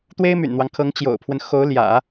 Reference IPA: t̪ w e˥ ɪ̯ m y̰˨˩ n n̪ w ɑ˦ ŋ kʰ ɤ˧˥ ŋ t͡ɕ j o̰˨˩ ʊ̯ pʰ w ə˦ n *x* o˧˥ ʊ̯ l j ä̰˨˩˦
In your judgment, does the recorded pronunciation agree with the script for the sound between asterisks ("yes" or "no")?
yes